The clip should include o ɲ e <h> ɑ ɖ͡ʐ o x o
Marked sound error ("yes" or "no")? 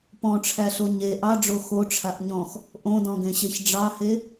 yes